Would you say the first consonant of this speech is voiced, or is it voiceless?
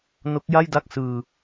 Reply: voiced